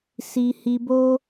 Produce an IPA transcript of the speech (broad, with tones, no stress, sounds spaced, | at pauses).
s i˧ h i˧ b o˦